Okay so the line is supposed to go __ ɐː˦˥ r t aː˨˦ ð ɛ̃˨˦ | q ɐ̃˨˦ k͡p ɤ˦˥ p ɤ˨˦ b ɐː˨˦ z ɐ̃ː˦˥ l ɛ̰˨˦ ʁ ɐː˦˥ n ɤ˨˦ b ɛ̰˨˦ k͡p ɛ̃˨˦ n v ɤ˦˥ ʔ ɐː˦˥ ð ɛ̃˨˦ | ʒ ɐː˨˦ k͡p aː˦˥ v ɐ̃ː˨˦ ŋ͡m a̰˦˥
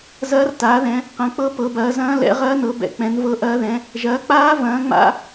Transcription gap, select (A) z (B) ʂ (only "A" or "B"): A